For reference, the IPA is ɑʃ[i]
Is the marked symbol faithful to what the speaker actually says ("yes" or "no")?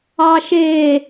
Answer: no